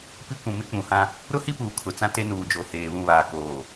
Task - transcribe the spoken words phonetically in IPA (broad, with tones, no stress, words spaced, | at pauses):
pi˦kʷũ˨mɪ˦ k͡pũ˨hã˦ | ɾʊ˦hi˦puː˨ kʰʊ˨t͡sã˦ te˦nuː˨d͡ʒo˨ heː˨βũ˦˨βaː˨ koː˨